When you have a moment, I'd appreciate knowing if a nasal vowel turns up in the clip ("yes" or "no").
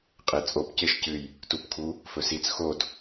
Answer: no